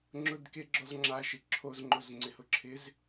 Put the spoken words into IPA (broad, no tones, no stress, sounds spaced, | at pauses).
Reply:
ŋ͡ǁ ʊ d k e ɡ͡ǁ ɔ z ŋ͡ǁ a ʃ ɪ ǁʰ o z ŋ͡ǃ o z ŋ͡ǀ ɪ h ʊ ǁʰ ɪ z